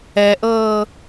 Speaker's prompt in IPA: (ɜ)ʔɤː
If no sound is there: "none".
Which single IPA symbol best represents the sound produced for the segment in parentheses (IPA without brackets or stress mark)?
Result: ɛ